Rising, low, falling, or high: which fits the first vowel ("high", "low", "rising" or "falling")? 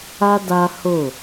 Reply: high